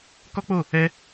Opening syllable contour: high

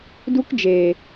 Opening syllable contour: high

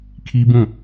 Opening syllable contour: high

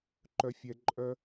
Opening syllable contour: high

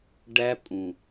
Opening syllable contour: high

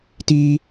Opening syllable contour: high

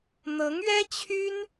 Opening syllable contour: rising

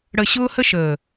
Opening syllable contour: low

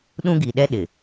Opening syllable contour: high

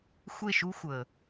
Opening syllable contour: falling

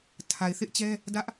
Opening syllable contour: low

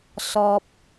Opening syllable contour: high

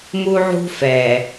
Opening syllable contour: high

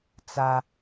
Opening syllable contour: high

